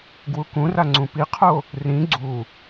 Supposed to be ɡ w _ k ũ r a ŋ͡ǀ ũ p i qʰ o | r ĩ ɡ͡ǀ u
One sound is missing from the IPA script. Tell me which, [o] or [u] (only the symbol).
u